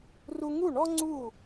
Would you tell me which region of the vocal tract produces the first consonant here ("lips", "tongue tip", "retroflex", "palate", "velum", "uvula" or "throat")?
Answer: tongue tip